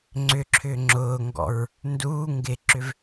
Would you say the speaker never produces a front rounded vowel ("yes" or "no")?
no